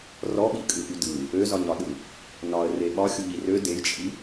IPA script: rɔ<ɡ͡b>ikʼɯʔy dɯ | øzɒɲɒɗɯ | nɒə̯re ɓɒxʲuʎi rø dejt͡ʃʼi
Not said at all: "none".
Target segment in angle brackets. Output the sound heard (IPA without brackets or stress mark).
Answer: ɓ